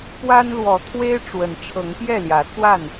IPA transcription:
p w a˦ n l w ɔ˨˦ t̪ʰ w e˦ ɪ̯ ʈ͡ʂ w ə˨˦ n ʈ͡ʂʰ ɤ˨˦ ŋ p j ɛ˥˨ l j ä˨˦ t͡s w a˥˨ n

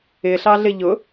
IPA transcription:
ɪ ɬ ɑ ɮ ɪ ʎ ʊ

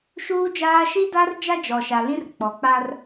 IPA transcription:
ʃ uː˦ d͡ʒ aː˦ ʃ i˦ d a˦ r d͡ʒ a˦ d͡ʒ ɔ˨ ʃ a˨ l ĩ˦ r k͡p ɔ˨ k͡p a˦ r

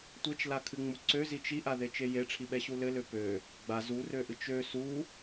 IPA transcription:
tʷ e t͡ʃ l a kʰ ɨ ŋ͡m u ǀ ø z i t͡ʃ i ʔ a ð e t͡ʃ e j e ʈ͡ʂʰ i ɓ ɛ ɕ u l ɘ l ø p ø | ɡ͡b a z u r ø ʔ ɨ t͡ʃ ø s u

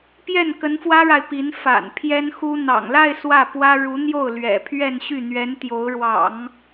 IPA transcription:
p j ɛ˥˩ n k ə˧˥ n f w ä˥ ɻ a˨ ɪ̯ p i˧˥ n f a̰˨˩ n pʰ j ɛ˥ n x u˥ n̪ ɑ̰˨˩ ŋ l a˥˧ ɪ̯ s w ä˥˩ p w ä˥ ɻ u˧˥ n̪ j o˥˩ ʊ̯ l ɥ ɛ̰˨˩ pʰ ɥ ɛ˥˧ n ɕ y˥˩ n̪ ɥ ɛ˧˥ n t̪ j o˧˥ ʊ̯ ɻ w ɑ̰˨˩˦ ŋ

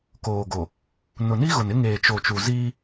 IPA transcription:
k oː˨ ɡ o˨ | n ʊ˨ n i˦ ɣ ʊ˨ n ɪ˦ ŋ eː˨ t͡ʃ o˨ t͡ʃ u˨ z iː˦

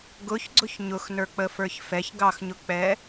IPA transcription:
ɡ ʊ ç ɡ͡ǀ ʊ ç ɲ ʊ x n ə˞ k͡p ə f ə˞ ç f ɛ ç ɡ ɑ x ɲ ʊ k͡p ɛ

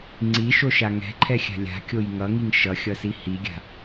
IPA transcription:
ŋ͡ǀ i ʃ o ʃ a ŋ ɛ̤ ǃʰ ɛ xʲ a̤ lʲ a̤ kʲ o j ŋ ʌ ŋ i ŋ ʃ ʌ xʲ ʌ s i h i ɡʲ a̤

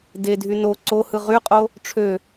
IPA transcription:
d e dʱ y n o ǀ o h ɯ ʁ y qʼ o | ʈ͡ʂʰ ø

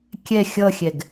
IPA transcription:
kʲ ɛ xʲ ʌ xʲ ɛ ɡ

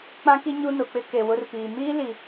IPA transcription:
k͡p ã˦ k i˦ ɲ u˦ n ʊ˨ k͡p ɪ˦ k e˨ w ʊ˦ r p iː˨ m iː˦ l i˨

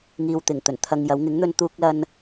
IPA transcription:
ŋ iː˨ w t̪ ɪ˨˩ ŋ t̪ ɵ˨˩ n t̪ʰ ɐ˧ ŋ j ɐ˨˥ w ŋ ɪ˨˥ ŋ n̪ ɵ˧ n t̪ uː˧ k̚ l ɐ˧ n

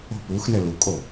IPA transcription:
o̤ p u x n ɘ l u kʼ o

